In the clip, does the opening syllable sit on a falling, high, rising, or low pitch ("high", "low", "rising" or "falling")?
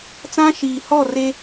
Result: high